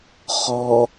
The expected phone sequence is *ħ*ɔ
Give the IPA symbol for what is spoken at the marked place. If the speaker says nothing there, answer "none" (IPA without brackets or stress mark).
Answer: χ